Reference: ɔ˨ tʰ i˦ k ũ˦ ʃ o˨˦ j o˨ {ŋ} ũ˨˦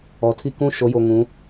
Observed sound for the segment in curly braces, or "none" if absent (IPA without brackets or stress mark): ŋ